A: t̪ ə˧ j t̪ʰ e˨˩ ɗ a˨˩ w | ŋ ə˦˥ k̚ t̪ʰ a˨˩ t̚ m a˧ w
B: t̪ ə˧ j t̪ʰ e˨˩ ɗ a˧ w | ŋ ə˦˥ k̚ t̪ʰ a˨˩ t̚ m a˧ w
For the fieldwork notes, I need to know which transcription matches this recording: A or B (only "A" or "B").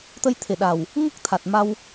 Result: A